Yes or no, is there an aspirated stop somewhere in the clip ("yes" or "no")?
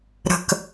no